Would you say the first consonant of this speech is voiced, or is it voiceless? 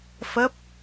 voiceless